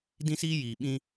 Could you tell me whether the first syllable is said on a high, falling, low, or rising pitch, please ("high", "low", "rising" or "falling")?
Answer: high